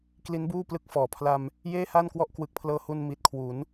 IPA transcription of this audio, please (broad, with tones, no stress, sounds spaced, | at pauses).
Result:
k l i˦˥ n b uː˥˩ p l ɯ˦˥ k̚ f ɔː˩˦ pʰ l a˧ m | j eː˥˩ h a˥˩ n k w ɔ˦˥ ʔ k w ɯ˨˩ k̚ pʰ l ɤː˧ h u˧ n m i˨˩ t̚ kʰ w u˩˦ n